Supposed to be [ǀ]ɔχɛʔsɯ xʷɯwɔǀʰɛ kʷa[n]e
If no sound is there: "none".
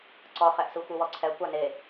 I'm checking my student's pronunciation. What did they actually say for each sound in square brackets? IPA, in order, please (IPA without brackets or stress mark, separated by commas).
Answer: ǀ, n